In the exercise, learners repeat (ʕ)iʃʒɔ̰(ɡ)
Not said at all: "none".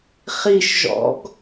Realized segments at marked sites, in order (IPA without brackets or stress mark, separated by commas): χ, ɡ